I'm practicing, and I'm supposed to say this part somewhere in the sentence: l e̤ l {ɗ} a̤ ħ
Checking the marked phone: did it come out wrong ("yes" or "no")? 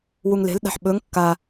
no